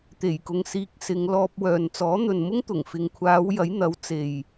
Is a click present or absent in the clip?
absent